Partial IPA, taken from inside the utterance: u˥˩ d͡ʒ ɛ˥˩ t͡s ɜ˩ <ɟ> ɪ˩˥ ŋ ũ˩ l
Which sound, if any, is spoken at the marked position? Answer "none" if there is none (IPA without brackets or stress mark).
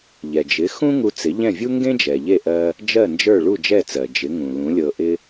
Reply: d͡ʒ